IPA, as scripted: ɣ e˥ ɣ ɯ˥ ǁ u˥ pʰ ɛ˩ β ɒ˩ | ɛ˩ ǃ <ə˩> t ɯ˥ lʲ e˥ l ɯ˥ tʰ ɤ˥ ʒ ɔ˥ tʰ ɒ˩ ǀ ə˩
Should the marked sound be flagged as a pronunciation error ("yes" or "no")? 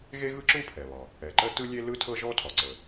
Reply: yes